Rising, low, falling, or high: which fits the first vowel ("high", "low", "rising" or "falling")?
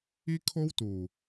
high